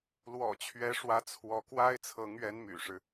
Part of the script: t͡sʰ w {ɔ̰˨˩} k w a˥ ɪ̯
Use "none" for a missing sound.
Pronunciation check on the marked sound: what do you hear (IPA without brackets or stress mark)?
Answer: ɔ˧˥